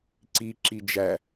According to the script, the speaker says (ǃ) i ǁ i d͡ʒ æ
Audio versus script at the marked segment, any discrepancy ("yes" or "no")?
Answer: yes